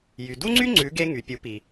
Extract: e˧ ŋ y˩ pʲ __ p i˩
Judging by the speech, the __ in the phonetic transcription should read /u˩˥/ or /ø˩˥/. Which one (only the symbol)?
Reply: u˩˥